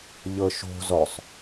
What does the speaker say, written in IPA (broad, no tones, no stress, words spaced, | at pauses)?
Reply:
ʎɤʃo̤ zɔsˤ